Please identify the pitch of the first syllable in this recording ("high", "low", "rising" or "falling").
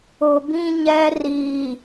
low